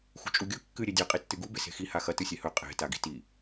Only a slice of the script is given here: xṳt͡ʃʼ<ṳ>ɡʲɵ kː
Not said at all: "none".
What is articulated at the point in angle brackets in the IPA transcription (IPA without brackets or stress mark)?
u